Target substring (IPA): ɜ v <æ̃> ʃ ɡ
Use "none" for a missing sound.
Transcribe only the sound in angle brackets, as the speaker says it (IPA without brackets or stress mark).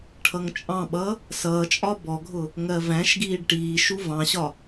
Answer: æ̃